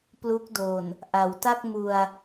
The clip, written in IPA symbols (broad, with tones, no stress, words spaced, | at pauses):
plu˦˥k̚do˨˩n | ʔa˩˦wta˥˩k̚ mu˧a̯